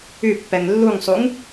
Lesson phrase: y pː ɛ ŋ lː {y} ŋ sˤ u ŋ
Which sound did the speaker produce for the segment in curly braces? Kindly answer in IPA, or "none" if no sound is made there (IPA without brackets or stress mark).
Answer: u